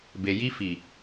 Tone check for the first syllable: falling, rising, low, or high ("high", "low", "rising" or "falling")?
low